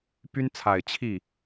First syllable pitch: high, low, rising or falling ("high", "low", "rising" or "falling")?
high